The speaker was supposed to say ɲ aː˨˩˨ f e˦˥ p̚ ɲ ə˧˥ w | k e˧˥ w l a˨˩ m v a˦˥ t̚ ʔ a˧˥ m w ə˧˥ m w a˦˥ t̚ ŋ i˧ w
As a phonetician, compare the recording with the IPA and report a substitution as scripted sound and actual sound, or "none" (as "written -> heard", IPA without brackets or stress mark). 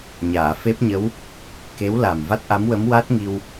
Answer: none